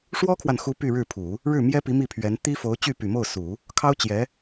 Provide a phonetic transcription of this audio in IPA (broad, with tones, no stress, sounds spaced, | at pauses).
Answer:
ʂ w ɔ˥ kʰ w a˨ n x u˧˥ p y˥˧ ɻ ɻ̩˥˩ pʰ u˨˩˦ | ɻ ɻ̩˥˩ m j ɛ˥ p i˧˥ m i˥˩ pʰ ɥ ɛ˧˥ n t̪ i˥ f o˧˥ ʊ̯ t͡ɕ y˥˩ p y˨˩ m o˥˩ ʊ̯ s u˨˩˦ | kʰ ɑ˥ ʊ̯ t͡ɕ j ɛ˧˥